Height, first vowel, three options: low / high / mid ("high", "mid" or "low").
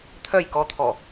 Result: mid